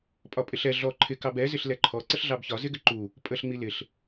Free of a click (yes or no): no